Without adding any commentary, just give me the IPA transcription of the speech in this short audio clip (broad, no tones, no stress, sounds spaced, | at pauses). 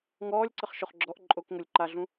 ŋ ɔː lʲ ǀ ə χ ʃ o χ ɡ͡ǁ ɔ ʔ ǃʼ o k ŋ o lʲ ǃ a ɮ ũ